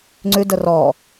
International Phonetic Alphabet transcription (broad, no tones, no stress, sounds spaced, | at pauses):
ŋ͡ǀ ʉ d ə r ɔ